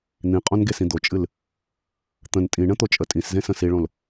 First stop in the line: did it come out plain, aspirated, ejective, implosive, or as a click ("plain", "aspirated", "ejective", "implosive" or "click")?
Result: ejective